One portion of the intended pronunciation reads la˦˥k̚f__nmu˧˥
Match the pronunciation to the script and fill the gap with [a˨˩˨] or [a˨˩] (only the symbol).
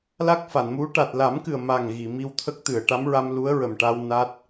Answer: a˨˩˨